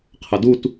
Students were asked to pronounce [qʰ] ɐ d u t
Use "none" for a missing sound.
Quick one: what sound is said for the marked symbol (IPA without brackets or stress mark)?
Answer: qʰ